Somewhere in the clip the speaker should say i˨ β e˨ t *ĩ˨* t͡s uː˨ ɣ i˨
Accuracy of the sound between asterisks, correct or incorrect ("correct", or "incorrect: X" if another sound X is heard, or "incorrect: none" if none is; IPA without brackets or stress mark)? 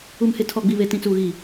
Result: correct